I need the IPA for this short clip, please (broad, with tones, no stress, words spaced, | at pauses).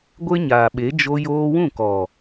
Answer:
ɡʷe˦ɲaː˨ɓe˨˦ d͡ʒo˧joː˧wũ˦˨kɔ˨